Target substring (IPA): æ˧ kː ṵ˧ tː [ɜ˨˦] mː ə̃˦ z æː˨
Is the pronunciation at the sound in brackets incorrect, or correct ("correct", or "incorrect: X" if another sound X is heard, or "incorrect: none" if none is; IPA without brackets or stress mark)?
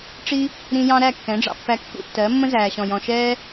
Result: correct